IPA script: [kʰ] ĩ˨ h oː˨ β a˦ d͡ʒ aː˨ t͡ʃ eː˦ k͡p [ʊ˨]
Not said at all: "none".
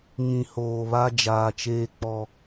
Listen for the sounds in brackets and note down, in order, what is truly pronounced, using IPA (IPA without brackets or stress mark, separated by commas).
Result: ŋ, ɔ˨